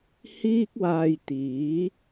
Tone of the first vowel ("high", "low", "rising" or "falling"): high